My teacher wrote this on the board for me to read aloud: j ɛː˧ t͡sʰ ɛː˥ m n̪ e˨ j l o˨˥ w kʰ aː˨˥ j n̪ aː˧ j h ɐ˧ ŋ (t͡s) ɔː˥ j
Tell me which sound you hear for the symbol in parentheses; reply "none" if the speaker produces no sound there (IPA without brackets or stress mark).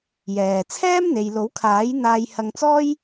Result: t͡s